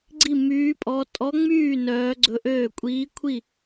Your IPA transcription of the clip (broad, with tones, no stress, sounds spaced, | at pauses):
ɡ͡ǀ i˥˧ m yː˦˥ pʼ ɔ˦˥ tʼ ɔ˦˥ ŋ͡m yː˥˧ n œː˦˥ ɡ͡ǀ ɵ˦˥ ʔ øː˥˧ kʷʼ iː˦˥ kʷʰ i˥˧